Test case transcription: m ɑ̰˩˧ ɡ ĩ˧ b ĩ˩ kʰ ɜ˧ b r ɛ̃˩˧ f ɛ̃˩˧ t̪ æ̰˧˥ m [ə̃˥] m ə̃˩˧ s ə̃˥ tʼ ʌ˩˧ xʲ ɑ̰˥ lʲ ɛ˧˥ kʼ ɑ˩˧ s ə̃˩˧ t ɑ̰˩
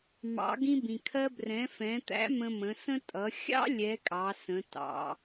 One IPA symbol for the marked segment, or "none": ə̃˧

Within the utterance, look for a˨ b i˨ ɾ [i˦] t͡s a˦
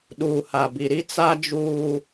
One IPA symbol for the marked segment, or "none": i˦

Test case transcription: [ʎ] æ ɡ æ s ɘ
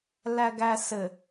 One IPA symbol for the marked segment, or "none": l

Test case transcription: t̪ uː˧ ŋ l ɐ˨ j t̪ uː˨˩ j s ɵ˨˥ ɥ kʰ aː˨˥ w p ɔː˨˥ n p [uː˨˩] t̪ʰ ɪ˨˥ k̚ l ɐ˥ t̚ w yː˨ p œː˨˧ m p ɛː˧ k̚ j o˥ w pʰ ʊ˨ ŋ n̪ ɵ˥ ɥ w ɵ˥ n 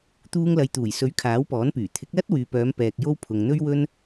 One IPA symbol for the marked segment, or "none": yː˨˩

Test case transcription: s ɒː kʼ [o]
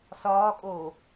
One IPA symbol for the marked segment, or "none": oː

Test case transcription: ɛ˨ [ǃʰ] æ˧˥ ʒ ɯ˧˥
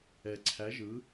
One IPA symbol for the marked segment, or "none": ǀʰ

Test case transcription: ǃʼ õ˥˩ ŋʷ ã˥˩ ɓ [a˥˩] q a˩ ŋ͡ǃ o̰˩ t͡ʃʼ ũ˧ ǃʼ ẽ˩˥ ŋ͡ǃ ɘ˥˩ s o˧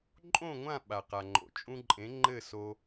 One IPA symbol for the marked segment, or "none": a˩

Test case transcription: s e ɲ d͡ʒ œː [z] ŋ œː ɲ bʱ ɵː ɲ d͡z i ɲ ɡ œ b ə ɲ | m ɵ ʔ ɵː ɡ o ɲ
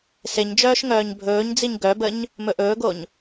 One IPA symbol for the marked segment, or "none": ʃ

